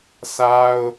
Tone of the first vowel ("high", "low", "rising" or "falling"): high